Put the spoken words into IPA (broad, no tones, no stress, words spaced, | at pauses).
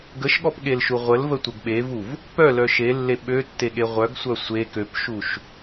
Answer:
ɡəʃɠɔpɠelʃu ʁʷəlvətʷəɡ ɓevuv | pœlœ ʃelːe ɓøtːeɠe ʁʷœɡsʷœ sʷe køpʃuʃ